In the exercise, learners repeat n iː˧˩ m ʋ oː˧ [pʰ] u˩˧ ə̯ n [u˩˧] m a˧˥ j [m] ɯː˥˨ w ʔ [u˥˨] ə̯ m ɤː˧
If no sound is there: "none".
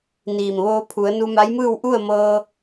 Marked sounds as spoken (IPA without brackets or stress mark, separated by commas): pʰ, u˧, m, u˥˨